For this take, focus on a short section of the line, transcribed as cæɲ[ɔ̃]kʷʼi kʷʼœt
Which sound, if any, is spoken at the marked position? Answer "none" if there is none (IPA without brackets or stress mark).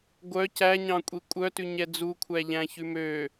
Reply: ɑ̃